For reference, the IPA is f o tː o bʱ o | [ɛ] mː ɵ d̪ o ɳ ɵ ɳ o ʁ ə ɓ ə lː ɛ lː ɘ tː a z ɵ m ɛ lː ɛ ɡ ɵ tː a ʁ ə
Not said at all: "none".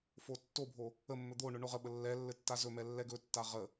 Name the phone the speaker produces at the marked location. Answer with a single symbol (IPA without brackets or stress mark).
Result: ə